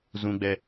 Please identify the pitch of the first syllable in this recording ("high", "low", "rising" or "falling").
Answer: high